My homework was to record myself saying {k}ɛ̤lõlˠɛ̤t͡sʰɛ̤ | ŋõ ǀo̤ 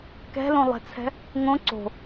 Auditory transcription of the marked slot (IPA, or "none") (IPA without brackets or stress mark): k